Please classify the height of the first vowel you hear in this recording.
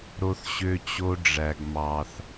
mid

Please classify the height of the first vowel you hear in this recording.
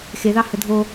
mid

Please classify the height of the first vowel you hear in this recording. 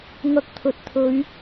low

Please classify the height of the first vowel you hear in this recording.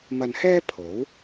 low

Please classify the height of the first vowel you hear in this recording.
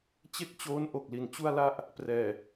mid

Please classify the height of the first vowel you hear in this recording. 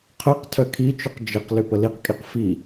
mid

